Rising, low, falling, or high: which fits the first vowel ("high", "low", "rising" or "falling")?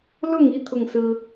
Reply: falling